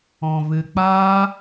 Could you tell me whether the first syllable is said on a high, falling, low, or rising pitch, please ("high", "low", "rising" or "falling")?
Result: low